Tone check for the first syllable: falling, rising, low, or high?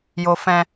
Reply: low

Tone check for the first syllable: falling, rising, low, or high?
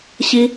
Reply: high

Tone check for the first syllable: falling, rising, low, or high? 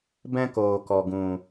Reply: high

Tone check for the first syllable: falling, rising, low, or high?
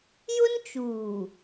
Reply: high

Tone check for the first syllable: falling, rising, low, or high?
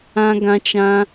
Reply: high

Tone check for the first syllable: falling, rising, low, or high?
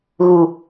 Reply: low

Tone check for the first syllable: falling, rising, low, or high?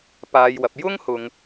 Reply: low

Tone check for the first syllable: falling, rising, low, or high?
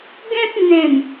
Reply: high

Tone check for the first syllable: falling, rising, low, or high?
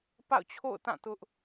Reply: falling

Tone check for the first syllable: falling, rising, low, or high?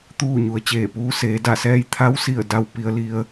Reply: falling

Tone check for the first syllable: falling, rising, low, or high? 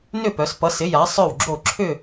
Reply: falling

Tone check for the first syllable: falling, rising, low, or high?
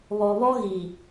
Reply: low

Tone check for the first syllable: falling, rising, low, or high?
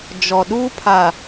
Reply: low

